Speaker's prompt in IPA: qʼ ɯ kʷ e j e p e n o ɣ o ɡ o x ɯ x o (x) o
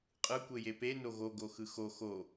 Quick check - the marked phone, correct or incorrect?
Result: correct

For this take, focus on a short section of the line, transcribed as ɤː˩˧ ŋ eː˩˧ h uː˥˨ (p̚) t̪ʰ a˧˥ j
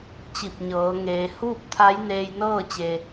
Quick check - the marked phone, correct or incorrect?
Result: correct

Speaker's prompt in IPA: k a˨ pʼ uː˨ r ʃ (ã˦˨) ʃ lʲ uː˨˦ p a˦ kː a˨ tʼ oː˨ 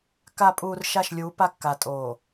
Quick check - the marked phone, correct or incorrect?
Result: incorrect: a˦˨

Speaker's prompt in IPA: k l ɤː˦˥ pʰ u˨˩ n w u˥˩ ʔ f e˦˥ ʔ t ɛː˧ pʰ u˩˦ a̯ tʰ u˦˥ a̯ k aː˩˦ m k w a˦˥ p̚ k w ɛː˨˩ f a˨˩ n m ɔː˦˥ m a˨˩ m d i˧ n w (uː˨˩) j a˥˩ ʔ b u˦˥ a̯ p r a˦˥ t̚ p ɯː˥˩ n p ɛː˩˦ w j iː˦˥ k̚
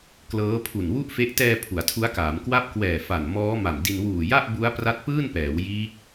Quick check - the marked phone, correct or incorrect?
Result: correct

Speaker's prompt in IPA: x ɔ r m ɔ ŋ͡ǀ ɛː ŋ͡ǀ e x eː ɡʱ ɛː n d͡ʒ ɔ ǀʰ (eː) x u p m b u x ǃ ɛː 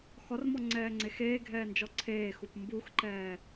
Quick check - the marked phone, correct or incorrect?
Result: correct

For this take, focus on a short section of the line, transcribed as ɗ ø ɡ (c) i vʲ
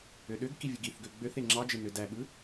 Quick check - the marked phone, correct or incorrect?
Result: incorrect: k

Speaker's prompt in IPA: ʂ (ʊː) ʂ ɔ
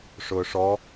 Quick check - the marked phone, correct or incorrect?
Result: correct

